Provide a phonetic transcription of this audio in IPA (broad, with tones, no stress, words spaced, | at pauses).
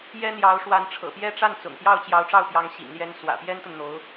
jɛ˥n̪jɑ˧˥ʊ̯ʂwa˧˥n ʈ͡ʂʰɤ̰˨˩pjɛ˥ʈ͡ʂa˥˩n t͡sʊ̰˨˩ŋpjɑ˥˩ʊ̯ t͡ɕjɑ˧˥ʊ̯ʈ͡ʂɑ˥˩ʊ̯ pjɑ˧˥ŋ ɕḭ˨˩ŋljɛ˧˥n swä̰˨˩pjɛ˥nt̪ə˨n n̪o˧˥ʊ̯